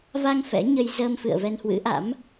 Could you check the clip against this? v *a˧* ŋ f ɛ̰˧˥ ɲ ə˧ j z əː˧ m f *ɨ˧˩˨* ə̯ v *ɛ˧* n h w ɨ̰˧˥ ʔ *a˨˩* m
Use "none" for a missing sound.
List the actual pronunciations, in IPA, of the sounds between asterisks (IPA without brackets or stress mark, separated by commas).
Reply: a˧, ɨ̰˧˨, ɛ˧, a̰˧˥